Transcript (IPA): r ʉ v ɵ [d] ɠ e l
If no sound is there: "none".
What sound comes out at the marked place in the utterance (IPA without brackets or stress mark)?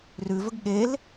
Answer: ɡ